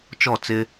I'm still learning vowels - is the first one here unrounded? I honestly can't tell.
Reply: no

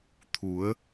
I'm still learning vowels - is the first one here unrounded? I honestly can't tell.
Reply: no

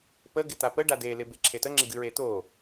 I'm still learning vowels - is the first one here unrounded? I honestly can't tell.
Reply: yes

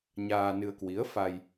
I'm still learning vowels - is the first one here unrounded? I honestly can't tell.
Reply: yes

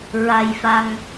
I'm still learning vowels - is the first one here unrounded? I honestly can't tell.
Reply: yes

